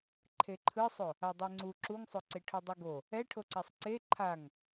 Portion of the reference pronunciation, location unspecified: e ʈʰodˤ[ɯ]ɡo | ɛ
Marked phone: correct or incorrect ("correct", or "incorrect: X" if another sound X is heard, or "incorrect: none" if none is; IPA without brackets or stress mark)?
correct